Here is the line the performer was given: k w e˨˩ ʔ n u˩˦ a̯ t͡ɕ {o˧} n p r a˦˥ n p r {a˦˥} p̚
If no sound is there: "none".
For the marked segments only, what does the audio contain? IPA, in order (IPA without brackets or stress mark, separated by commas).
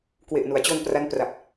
o˧, a˨˩